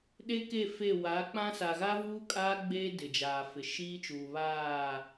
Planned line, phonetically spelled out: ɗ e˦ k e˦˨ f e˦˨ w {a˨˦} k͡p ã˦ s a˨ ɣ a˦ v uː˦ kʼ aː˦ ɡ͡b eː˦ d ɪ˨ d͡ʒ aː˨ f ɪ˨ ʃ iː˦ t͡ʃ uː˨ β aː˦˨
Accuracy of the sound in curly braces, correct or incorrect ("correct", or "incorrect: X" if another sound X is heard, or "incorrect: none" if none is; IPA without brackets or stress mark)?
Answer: correct